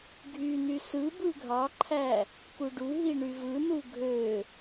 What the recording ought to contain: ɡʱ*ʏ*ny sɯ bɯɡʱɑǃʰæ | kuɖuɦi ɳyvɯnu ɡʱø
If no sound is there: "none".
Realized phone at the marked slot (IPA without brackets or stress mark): y